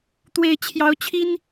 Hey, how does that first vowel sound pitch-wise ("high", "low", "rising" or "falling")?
high